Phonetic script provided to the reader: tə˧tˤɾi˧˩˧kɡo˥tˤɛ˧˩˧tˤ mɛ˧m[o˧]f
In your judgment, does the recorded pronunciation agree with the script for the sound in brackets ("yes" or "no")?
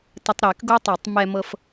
no